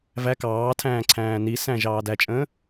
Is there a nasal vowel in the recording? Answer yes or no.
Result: yes